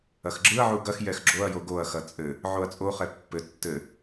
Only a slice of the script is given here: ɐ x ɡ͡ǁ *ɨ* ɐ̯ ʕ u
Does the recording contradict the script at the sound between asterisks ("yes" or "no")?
no